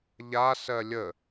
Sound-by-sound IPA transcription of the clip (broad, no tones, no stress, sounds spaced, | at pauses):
ʎ a s ɜ lʲ ə